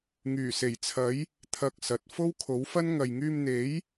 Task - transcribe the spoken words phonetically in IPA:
ŋyː˨˩se˨˩jt͡sʰɐ˨˥j | t̪ʰɐ˧k̚ sɐ˨t̚ fo˥wkʰo˨˥wfɐ˥n ŋɐ˨jŋyː˧mn̪e˨˥j

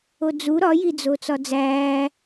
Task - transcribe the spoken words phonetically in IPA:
od͡zu ɾɒjid͡zo t͡sɒd͡zæː

